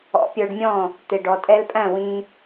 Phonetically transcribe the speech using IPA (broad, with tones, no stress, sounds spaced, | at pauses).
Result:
ɔ̰˩˥ pʲ ə˞˧ ɖ mʲ ɔ̃˥˩ | t̪ ɪ˩ ɖ ɔ˩ tʼ ɛ˧ l pʼ æ̃˥˩ w ĩ˧